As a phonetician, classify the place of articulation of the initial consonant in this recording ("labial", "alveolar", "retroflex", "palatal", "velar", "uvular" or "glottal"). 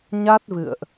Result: palatal